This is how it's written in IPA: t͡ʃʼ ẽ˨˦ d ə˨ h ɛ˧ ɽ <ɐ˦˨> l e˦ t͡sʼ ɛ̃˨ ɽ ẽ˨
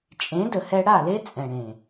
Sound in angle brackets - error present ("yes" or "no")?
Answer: yes